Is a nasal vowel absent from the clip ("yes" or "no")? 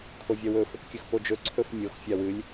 yes